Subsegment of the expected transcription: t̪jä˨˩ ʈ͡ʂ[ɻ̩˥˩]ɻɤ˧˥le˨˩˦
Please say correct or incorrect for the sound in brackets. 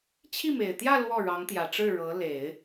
correct